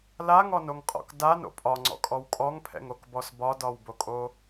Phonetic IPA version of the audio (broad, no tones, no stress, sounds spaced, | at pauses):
l a ŋ ɔ n o ŋ qʼ ɔ̰ k d a n o̰ pʼ ɒ ŋ͡ǀ ɔ̰ kʼ ɔ w kʼ ɔ ŋ pʰ ɛ̰ ŋ o k b ɔ s b ɒ d ɒ w b o kʼ o